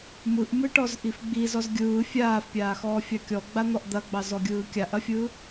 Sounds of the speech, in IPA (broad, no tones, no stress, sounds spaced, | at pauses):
m ɯ ʔ m ɯ ʈ ɔ z ʔ i f ɡ͡b i z ɔ z ɡʲ ɯː fʲ aː f pʲ aː x ɔː fʲ ɑ kʲ ɔ ɡ͡b a n̪ ɔ ʔ d̪ ɐ ɡ͡b ɑ z ɔ ɡʲ ɯː kʲ a ʔ ɐ fʲ ɯ